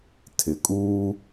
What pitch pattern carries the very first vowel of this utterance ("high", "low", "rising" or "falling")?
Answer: low